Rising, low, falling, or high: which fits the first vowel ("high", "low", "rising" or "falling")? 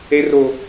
high